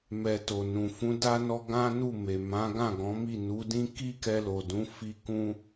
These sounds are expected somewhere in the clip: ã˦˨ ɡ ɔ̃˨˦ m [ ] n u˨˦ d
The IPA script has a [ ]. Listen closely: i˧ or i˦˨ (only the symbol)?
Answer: i˦˨